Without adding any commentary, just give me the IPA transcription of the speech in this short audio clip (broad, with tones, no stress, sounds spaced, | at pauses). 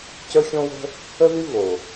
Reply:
c ə˞˥ xʲ õ˥ w ə̤˥ | ə˥ ð y˥ v o˩